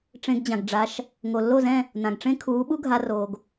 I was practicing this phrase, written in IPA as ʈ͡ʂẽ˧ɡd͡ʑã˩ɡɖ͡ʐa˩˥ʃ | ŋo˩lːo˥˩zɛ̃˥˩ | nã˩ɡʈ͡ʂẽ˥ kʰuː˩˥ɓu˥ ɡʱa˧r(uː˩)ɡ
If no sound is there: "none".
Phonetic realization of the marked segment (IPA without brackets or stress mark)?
oː˩